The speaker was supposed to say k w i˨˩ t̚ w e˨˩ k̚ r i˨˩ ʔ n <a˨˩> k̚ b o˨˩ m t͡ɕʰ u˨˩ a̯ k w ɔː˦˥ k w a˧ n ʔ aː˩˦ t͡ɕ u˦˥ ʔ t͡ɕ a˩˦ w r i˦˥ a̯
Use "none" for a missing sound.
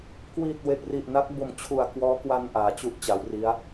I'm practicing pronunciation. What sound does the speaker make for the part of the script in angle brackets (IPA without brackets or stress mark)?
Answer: a˦˥